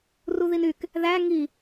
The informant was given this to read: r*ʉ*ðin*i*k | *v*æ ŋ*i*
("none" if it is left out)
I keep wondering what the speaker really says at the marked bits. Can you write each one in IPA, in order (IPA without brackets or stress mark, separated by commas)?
u, y, ð, i